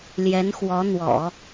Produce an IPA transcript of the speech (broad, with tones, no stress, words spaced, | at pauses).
ljɛ˧˥nxwɔ˧˥n̪wɔ̰˨˩˦